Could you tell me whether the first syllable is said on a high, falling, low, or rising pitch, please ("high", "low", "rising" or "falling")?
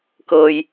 low